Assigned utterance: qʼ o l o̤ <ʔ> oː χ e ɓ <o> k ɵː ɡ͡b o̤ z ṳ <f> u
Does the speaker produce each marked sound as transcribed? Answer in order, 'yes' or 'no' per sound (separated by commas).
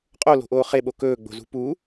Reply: yes, yes, no